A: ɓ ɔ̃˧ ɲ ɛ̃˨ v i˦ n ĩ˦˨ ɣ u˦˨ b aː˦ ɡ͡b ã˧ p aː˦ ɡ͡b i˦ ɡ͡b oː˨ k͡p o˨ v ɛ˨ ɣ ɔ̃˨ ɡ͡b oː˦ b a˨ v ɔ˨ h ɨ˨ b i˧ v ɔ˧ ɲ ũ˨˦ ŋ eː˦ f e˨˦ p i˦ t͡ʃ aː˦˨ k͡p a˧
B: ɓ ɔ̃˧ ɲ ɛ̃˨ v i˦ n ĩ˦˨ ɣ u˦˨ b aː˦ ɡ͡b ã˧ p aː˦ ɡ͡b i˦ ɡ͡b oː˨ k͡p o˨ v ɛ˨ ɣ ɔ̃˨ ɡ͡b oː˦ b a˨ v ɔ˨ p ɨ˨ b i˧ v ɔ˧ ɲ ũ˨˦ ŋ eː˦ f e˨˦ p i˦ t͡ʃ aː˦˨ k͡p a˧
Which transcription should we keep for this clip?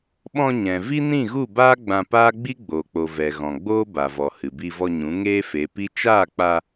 A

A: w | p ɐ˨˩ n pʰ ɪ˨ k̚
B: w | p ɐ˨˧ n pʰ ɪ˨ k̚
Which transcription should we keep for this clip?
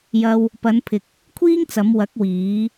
B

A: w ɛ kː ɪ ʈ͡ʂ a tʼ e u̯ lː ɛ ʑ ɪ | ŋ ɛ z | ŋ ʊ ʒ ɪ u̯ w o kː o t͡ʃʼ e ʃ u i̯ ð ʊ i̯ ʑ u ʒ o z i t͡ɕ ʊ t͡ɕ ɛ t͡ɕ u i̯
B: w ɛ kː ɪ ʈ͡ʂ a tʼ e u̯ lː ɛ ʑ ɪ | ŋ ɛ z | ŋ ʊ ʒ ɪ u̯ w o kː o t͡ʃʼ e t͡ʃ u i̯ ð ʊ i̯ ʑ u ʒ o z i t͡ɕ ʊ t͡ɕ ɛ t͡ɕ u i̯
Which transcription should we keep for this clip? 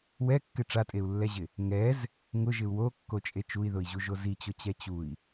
B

